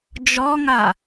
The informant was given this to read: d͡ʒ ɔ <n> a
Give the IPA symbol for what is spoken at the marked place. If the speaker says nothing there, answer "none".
ŋ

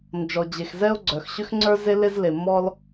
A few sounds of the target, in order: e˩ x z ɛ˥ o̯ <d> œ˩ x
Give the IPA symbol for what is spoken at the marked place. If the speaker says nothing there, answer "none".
ɡ͡ǀ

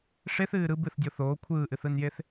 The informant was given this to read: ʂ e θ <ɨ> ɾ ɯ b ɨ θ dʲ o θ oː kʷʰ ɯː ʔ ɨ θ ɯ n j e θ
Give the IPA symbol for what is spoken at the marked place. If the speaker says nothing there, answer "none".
ɨː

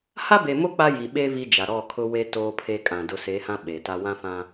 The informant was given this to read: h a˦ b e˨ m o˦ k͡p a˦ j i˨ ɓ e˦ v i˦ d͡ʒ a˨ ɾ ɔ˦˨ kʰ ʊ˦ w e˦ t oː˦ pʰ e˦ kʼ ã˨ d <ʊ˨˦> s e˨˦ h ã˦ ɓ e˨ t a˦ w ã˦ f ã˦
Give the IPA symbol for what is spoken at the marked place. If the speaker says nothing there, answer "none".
ʊ˨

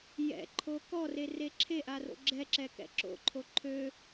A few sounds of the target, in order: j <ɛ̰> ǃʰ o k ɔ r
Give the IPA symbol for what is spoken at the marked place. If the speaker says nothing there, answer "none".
ɛ̰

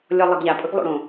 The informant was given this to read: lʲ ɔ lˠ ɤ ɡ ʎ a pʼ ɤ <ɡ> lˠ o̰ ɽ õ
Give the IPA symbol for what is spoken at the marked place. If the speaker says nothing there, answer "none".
ɡ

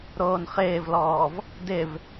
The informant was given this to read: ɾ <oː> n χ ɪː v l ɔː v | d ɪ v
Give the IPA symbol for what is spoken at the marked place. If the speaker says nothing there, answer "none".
oː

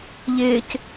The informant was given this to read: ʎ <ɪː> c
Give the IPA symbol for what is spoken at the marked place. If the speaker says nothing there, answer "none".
ɪː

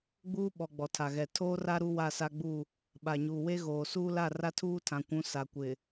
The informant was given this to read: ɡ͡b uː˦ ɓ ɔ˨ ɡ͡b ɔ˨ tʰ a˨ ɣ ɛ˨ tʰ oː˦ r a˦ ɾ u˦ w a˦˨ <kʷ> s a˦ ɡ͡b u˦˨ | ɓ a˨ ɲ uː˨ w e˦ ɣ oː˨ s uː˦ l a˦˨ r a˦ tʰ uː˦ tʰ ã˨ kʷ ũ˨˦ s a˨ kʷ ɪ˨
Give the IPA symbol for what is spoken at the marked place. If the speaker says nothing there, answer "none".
none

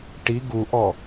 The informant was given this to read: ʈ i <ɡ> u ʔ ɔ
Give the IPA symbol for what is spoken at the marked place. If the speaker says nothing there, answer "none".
ɡ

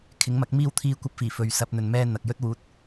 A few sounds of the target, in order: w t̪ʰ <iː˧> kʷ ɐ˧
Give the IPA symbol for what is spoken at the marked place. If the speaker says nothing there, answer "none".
iː˧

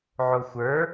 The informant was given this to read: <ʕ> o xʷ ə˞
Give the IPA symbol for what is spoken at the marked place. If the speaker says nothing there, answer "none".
ʕ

